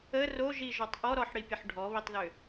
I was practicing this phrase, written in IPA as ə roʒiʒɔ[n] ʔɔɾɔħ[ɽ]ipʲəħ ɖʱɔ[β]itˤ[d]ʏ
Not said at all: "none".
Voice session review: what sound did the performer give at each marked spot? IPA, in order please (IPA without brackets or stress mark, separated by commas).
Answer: tˤ, ɽ, β, ð